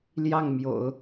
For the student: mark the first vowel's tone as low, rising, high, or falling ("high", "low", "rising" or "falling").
falling